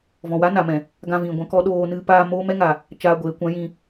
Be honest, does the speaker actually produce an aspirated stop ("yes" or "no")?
no